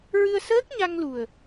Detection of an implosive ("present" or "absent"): absent